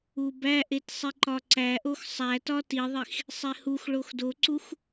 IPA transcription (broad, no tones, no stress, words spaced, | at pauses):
ubæʔet sˤiǃɒǀæʔox sˤætɒ tiðˤix | sˤehuxɭox doǀux